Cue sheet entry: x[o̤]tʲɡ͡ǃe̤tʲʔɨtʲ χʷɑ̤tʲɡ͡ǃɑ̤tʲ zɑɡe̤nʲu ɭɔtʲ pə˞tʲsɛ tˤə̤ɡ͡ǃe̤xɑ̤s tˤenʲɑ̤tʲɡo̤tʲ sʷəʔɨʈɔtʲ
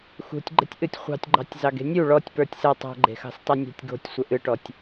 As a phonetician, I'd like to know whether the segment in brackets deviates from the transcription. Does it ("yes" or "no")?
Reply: yes